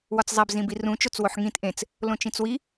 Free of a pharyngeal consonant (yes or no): no